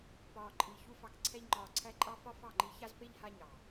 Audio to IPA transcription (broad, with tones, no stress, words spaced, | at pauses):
pɒː˨ǃʼi˨ çu˧fɑ˨kǀʰɛ˧ʎŋ͡ǃɒː˨ ǀʰæ˦ǃʼɑ˦ fɒ˦fɑ˦˨ŋ͡ǃi˧ ça˦zpe˦ʎ ha˦ɲɑ˨